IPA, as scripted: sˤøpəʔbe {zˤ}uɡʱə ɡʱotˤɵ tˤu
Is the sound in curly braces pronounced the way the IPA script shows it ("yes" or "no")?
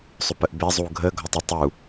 yes